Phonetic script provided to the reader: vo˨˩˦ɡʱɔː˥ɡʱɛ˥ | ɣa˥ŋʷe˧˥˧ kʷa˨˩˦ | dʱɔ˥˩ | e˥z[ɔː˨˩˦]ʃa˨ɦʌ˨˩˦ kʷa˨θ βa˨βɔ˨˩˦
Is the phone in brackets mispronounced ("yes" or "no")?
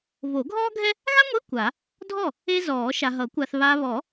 no